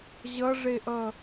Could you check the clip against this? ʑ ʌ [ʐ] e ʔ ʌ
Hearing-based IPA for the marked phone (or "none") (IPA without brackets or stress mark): ʐ